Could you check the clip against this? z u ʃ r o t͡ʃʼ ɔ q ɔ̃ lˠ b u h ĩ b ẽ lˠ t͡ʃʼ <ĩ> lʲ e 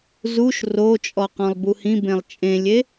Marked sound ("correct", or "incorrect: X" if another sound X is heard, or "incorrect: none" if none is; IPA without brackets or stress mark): incorrect: ẽ